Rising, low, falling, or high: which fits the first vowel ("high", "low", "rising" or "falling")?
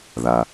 low